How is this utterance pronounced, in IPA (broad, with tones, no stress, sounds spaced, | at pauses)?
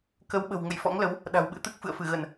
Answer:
k ə˨˦ w ɓ ə̤˨˩ w ŋ ə̰˧˨ j f ɔ̰˧˥ ŋ l ə˨˦ w | ɗ a̤˨˩ w ɓ ɨ̰˧˥ t̪ ɨ˦˥ k̚ f ɨ̰˧˨ ə̯ f ɨ˧˩ ɣ ə˧˩˨ n